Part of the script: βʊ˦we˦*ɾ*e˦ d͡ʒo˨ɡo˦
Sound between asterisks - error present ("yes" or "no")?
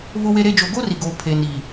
no